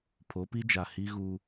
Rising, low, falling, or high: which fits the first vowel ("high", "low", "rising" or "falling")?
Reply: rising